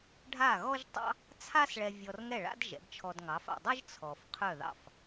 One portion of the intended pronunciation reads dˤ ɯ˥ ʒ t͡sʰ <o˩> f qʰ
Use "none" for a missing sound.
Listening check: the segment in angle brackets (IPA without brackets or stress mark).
ɔ˩